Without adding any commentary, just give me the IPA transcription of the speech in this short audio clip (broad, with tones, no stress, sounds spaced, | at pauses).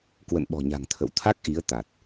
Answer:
k w ə̰˧˨ n ɓ ɔ̤˨˩ ɲ a̤˨˩ ŋ t̪ʰ ə̰˧˨ w t̪ʰ a˦˥ k̚ ʔ i˨˦ ə̯ t̪ a˨˩ t̚